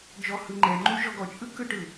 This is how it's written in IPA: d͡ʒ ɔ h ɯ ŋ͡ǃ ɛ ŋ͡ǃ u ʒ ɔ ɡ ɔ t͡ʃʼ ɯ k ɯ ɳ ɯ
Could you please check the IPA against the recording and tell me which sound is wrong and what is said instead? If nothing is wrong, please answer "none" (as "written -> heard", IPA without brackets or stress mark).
ɳ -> ʈ